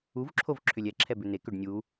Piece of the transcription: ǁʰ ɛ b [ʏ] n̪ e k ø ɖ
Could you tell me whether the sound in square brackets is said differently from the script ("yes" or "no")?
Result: no